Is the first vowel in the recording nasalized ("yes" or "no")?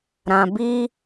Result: yes